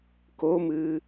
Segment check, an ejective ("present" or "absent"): absent